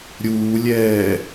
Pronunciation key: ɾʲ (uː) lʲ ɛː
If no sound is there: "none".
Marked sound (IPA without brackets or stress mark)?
uː